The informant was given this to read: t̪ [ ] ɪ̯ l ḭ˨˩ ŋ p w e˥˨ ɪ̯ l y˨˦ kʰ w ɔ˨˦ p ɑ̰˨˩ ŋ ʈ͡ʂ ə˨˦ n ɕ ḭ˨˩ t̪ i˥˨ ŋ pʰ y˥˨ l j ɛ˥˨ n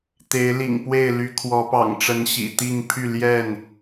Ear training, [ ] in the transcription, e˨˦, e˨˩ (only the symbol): e˨˦